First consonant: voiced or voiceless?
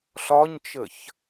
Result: voiceless